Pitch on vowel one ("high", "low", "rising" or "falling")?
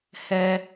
high